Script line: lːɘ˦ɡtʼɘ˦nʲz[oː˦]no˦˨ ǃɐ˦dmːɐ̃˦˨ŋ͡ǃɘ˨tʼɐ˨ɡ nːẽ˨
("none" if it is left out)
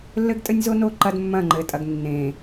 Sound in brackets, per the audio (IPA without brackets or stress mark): o˦